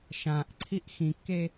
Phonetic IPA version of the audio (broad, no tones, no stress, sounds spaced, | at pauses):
ʃ ã ʔ ǀʰ i ʔ x ĩ kː e